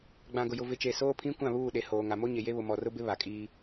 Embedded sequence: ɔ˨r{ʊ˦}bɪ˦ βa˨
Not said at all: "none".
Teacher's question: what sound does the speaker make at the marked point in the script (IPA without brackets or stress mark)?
ʊ˦